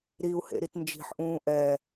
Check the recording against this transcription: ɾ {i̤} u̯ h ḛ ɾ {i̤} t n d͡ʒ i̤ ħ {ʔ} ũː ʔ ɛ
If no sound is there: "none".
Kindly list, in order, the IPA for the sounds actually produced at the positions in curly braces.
i, i, ʔ

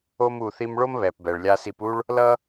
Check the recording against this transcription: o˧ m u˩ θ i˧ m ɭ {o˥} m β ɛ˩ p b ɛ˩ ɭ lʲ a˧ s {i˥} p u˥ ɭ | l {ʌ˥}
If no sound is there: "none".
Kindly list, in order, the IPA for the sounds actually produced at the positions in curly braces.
o˥, i˧, ʌ˥

